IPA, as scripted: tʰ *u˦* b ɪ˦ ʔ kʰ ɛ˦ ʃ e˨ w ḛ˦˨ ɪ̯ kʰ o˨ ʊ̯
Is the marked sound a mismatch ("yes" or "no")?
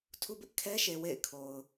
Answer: no